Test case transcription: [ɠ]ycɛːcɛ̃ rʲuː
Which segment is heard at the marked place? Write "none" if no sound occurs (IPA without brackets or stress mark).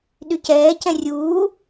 ɗ